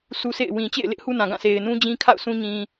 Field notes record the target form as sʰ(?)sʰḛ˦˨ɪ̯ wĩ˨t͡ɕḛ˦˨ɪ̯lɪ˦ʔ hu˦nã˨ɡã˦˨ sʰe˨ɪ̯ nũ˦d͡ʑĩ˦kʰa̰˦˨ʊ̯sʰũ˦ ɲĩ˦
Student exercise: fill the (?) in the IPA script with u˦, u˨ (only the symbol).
u˦